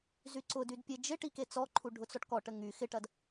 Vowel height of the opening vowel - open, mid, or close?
close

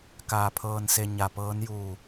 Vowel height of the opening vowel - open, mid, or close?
open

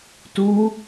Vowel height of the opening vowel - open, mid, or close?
close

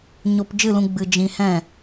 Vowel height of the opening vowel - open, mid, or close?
mid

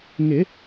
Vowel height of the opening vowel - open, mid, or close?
close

